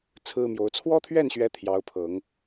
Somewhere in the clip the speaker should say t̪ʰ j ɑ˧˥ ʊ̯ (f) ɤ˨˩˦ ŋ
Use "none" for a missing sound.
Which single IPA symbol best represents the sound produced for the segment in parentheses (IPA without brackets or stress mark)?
pʰ